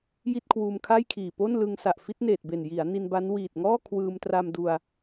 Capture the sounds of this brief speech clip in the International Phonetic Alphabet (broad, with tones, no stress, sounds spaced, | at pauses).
j i˥˩ t̚ kʰ w uː˧ m kʰ a˥˩ j kʰ iː˨˩ p o˥˩ n l ɯ˧ ŋ s a˨˩ ʔ f i˦˥ t̚ n eː˨˩ t̚ b e˨˩ n j i˩˦ a̯ n i˧ n b a˦˥ n w iː˨˩ t̚ ŋ ɔː˥˩ kʰ w ɯː˧ m t r a˧ m d u˧ a̯